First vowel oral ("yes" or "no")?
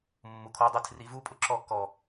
yes